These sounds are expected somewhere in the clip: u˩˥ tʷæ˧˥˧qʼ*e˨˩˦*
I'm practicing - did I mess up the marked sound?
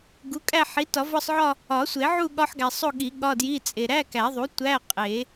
no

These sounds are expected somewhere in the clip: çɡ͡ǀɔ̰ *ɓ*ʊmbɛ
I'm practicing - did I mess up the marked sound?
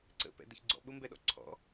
no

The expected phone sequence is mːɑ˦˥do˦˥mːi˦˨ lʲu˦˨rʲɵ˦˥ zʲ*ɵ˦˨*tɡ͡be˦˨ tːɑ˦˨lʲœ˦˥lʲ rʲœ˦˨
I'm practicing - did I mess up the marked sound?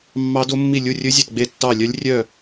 no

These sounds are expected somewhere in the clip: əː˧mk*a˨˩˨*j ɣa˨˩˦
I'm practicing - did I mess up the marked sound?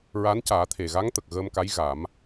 yes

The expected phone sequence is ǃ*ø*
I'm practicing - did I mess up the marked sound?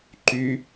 yes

